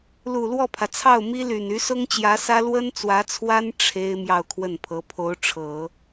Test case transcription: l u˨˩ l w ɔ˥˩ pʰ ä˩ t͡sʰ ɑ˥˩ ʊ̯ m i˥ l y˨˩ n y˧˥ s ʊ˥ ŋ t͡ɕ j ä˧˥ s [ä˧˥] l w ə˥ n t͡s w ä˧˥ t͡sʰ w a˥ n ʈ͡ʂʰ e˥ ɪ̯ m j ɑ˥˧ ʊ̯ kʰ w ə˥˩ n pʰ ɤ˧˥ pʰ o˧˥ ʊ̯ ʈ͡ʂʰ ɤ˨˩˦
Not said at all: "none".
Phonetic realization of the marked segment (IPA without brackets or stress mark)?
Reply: ä˥